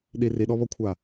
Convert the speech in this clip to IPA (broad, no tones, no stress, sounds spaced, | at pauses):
ɗ i r i ɗ ɔ β ɔ kʷʰ a